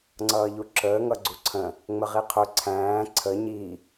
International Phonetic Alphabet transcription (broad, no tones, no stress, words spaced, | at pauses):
ŋ͡ǀʌːʎuǁəː ŋʌɡ͡ǀuǀʰə̃ | ŋ͡məʁiqʰʊ ǀʰæ̃ː ǀʰə ɲi